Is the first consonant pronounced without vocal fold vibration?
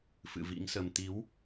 yes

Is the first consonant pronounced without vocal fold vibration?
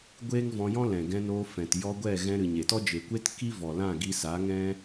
no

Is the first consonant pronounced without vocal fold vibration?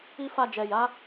yes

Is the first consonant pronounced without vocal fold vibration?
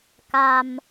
yes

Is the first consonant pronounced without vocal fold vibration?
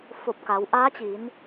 yes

